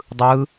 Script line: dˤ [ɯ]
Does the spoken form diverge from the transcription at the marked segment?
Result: no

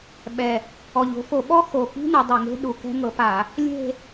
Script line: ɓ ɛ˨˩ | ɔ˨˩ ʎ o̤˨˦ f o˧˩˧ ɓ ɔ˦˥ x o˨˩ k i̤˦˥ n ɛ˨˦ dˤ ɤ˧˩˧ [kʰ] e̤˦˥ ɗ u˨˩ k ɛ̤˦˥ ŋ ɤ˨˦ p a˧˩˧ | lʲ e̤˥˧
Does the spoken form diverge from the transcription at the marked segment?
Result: yes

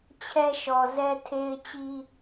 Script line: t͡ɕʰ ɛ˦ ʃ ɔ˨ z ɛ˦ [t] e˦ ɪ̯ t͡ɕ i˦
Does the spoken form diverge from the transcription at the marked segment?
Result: yes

